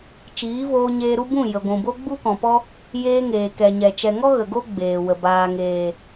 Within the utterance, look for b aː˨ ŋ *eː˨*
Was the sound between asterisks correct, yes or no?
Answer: yes